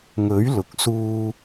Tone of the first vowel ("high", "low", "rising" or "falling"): rising